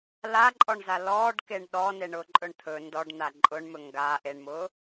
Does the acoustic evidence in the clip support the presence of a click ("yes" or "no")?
yes